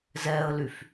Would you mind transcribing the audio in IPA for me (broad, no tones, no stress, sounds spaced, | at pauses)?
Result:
z ɛ ə̯ l y f